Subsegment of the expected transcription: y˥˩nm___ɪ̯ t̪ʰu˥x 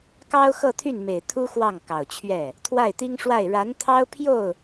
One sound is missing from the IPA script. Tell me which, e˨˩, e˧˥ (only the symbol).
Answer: e˨˩